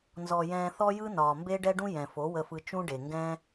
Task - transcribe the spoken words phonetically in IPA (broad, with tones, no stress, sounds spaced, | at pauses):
n z ɔ˨ j ɛ̃ː˧ θ ɔ˦ j ɯ˦ n ɒː˨ m b e˦ ɖ ɛ˦ ɖ ũ˦ j ɛ̃˨ f o˨˦ w ə˧ f ɯ˧ t͡ʃ ũ˦ ɖ e˨ ŋ ɡ ɛ̃˦